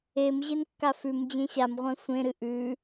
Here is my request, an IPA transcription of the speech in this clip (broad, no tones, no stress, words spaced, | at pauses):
em ʑenkːafʉm d͡ʑẽɕam ʁʷɐ̃sʷẽ ɾɨʔʉ